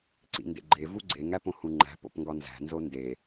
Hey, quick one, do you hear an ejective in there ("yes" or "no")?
no